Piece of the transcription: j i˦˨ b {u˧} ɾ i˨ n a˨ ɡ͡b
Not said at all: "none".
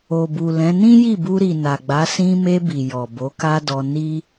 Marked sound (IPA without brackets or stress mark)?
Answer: u˧